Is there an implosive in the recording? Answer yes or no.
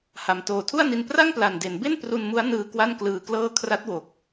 no